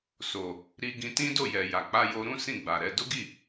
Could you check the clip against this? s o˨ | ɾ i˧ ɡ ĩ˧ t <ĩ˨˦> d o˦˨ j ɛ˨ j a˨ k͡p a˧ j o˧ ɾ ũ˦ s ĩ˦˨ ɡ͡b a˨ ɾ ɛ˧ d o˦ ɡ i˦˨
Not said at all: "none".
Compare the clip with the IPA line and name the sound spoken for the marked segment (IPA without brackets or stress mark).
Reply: ĩ˦